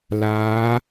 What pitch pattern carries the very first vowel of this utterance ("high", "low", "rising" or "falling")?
rising